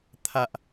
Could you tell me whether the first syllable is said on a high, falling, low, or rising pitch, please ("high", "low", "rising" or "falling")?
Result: low